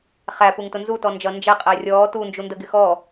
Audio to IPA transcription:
χ æ p u ŋ t ʊ n z u t ɔ n d͡ʒ ʌ n d͡ʒ ɛ qʼ æ rʲ ɔː t u n d͡ʒ u n d ə ɡ ɪ x ɔ

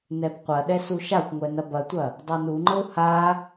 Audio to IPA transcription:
n ɛ b qʷ ɐ ɗ ɛ s u ʃ a xʷ ŋʷ ɛ n ɐ b ɐ tʷ ɐ | dˤ u n u ŋ͡ǃ ə u̯ h a

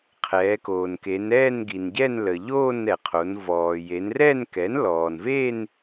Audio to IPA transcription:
qʰ ɛː˩˧ k oː˩ n k e˩˧ n ɛː˥˧ n ɡ i˩ n ɟ ɛ˥˧ n l ə˩ ʎ oː˥˧ n ɛ˩ qʰ o˩˧ n v ɔː˩ j e˩˧ n r ɛ˥˧ n k ɛ˩˥ n l ɔː˩ n v e˥˧ n

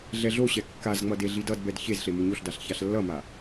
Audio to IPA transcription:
ɮ ɛ ɮ o ɕ ɛ kː a z ŋ͡m ʌ d e ɮ i d ʌ d b ɛ d ç e z ɬ e m ɯ ɲ o ɬ d a ɬ ç a ɬ lː ʌ m a

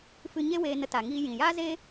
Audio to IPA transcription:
f ɨ˧ ɲ e˦ w eː˧ n ə˧ t a˨ ŋ iː˧ j ĩ˨ j aː˦ z e˦

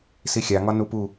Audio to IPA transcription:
s i xʲ a ŋ ɒ n u p u

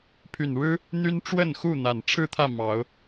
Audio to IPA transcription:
pʰ y˨˩ n ɻ ɻ̩˦ | n̪ y˦ n ʈ͡ʂ w ə˥˨ n x u˥˨ n̪ a˨˩ n ʈ͡ʂʰ ɻ̩˥˨ t̪ʰ ä˥˨ m ɑ˨˦ ʊ̯

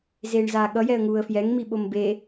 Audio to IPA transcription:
z eː ɳ z aː ɠ ʌ j ɛ ə̯ ŋ uː ə̯ f j ɛ ŋ m i ɓ o m b e

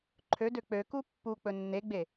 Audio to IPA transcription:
ǃʰ ø d ø k͡p ø k u pː u k͡p ɵ nː e ɡ͡b e

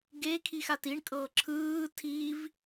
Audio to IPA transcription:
ɡ e kʰ i x a t i ɳ kʼ ɤ ǁʰ ɯː tʰ i v

